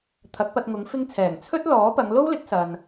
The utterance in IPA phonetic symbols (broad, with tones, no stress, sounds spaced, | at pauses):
t̪ʰ ɐ˨˥ k̚ p ɐ˧ t̚ ŋ ʊ˨˥ ŋ f ɪ˥ ŋ t͡sʰ ɛː˨˩ ŋ t͡sʰ ɵ˥ t̚ l ɔː˨˥ p ɐ˨˧ ŋ l o˥ w l ɪ˨˥ k̚ s ɐ˨ n